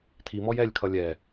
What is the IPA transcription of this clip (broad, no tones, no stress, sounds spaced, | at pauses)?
tʰ i m ɔ j ɛ lʲ kʰ ʌ lʲ ɛ